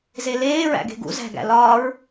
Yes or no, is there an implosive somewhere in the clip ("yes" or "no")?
no